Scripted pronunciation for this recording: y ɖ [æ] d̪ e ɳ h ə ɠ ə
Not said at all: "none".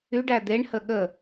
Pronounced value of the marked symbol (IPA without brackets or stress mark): æ